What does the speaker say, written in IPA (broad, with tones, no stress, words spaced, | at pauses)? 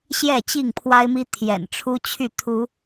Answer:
ɕjɛ˥˨t͡ɕi˥˨ŋpʰwa˦ɪ̯mi˦ t̪ʰjɛ̰˨˩nʈ͡ʂʰu˦ t͡ɕʰy˥˨ t̪ʰu˨˦